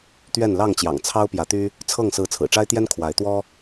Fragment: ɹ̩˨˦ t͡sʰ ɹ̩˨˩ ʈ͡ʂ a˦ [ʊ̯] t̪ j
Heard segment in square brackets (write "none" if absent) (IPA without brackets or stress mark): ɪ̯